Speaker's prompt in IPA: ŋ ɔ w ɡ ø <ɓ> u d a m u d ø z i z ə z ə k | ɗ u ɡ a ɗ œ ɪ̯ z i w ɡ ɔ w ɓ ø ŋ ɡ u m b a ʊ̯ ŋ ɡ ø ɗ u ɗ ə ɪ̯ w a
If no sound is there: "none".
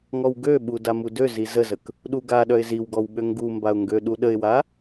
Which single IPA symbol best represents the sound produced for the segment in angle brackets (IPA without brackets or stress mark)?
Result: ɓ